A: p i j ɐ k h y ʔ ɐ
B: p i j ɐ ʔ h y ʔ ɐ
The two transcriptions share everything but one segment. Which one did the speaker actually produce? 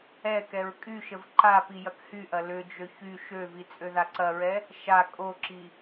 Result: A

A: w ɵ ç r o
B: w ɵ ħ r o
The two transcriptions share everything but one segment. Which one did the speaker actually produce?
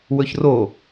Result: A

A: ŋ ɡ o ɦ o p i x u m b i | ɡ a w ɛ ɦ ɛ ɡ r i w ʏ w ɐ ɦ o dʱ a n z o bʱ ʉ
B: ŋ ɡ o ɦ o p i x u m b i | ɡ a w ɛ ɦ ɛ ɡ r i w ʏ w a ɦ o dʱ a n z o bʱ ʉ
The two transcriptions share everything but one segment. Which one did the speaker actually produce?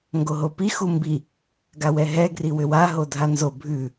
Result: B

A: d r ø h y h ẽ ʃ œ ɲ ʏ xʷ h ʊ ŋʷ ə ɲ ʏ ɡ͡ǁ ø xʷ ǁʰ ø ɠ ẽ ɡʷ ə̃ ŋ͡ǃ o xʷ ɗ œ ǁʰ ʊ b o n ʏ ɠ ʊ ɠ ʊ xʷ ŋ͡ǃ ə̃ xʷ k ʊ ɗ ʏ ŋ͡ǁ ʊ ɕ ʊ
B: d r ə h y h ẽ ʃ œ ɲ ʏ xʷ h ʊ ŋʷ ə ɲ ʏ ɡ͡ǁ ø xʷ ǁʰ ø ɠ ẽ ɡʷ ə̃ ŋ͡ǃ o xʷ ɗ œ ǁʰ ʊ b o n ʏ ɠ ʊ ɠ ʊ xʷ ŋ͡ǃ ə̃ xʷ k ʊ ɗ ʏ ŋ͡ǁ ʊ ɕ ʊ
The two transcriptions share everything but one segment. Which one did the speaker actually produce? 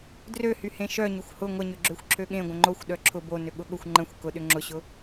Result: A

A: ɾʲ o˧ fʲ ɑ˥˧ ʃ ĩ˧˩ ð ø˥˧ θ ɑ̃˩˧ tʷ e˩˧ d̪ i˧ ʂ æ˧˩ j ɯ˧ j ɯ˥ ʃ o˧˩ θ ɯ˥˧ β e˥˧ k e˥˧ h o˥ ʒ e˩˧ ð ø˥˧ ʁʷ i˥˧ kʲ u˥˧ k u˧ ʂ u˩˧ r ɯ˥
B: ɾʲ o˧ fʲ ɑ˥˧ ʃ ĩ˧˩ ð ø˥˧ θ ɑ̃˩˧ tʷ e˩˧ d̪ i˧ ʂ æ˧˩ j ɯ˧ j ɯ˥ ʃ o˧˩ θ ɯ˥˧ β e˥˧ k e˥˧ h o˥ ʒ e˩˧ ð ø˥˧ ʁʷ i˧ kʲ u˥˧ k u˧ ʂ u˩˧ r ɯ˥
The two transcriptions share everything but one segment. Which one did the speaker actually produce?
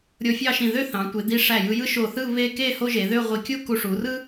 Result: B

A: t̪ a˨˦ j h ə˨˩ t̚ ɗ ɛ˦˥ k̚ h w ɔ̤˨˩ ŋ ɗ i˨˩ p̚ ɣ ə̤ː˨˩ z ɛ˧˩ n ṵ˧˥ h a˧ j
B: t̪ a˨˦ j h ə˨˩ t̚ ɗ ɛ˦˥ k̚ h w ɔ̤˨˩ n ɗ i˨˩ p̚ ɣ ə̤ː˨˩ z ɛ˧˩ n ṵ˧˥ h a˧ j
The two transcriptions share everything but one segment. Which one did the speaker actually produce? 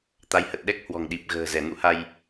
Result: A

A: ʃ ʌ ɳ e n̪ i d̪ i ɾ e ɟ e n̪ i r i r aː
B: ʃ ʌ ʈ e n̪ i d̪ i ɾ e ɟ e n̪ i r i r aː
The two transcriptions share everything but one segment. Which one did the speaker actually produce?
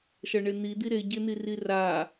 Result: A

